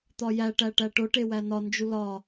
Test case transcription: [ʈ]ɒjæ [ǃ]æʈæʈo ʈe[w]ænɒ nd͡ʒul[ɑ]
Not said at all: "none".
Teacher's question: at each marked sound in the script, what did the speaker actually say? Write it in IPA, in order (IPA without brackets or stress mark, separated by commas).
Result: t̪, ʈ, w, ɒ